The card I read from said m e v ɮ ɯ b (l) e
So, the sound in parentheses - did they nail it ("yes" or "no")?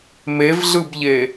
no